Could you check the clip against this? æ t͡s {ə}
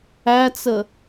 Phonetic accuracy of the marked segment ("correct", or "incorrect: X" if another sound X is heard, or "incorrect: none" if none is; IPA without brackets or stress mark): correct